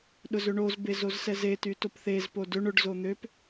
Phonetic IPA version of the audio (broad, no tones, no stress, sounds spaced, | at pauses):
ɗ ʊ z ʏ ɳ o z b e z o z s ɛ z e t y t o p θ e z p o d ʏ ɳ ʊ ɖ z o n̪ ø p